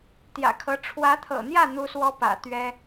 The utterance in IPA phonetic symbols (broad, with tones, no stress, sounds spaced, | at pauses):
t̪ j ä̰˨˩ kʰ ɤ˧˥ ʈ͡ʂʰ w ä˧˥ t̪ʰ ɤ̰˨˩ n̪ j ä˥˩ n̪ u˥ s w ɔ˥ p ä̰˨˩ t̪ ɥ ɛ˥